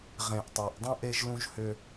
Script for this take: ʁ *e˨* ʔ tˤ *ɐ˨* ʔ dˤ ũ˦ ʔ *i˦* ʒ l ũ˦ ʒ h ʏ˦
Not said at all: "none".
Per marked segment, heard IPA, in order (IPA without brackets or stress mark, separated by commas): ẽ˨, æ˨, e˦